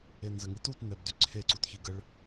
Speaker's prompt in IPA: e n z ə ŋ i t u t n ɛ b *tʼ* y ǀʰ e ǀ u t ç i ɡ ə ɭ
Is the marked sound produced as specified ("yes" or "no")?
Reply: no